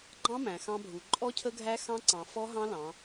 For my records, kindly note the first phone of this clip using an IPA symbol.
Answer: ɡ͡ǃ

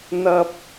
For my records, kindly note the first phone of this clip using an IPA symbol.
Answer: n̪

